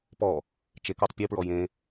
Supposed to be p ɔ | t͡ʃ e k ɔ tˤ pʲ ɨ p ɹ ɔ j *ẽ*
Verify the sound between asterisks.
correct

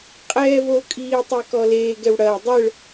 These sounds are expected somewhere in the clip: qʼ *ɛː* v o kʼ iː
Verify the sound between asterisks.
correct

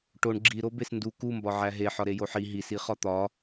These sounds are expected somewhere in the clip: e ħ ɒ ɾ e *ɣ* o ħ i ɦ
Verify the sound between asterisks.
incorrect: j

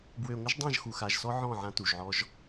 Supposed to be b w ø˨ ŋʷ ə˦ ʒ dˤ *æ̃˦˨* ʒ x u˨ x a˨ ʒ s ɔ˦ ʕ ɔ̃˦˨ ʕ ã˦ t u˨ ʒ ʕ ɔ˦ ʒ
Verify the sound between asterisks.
incorrect: ã˦˨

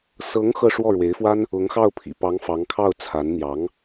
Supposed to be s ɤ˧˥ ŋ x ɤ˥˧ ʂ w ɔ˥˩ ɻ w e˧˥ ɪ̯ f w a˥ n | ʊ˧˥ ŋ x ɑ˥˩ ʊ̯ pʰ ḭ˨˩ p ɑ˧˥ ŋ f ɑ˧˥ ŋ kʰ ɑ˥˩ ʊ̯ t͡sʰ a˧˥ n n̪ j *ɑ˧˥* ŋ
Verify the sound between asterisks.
correct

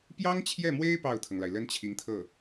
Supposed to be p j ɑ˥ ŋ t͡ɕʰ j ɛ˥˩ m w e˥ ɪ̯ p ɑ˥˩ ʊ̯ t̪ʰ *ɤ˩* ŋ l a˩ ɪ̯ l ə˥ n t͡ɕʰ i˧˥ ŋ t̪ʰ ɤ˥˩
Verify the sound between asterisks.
correct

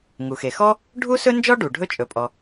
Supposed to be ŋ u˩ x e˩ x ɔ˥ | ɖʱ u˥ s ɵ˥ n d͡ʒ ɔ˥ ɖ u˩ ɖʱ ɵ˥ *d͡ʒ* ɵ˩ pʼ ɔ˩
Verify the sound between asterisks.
incorrect: t͡ʃʼ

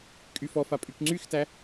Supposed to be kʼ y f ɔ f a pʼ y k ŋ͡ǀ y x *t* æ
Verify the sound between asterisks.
correct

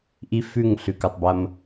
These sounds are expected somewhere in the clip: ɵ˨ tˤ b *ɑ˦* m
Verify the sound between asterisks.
incorrect: ɐ˦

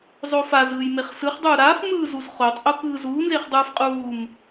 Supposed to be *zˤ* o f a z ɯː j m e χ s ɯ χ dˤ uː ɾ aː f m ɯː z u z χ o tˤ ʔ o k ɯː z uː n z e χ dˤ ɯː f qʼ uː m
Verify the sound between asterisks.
correct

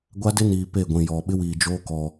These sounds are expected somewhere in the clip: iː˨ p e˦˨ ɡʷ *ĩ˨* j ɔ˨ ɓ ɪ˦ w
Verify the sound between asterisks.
correct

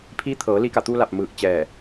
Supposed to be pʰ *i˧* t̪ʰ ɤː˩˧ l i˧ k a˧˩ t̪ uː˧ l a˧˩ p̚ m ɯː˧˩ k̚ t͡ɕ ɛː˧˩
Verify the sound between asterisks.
incorrect: i˧˥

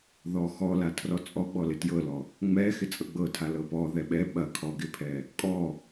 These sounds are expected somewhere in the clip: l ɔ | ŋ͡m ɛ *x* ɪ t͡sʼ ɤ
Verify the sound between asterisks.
correct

